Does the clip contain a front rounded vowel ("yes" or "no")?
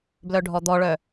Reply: yes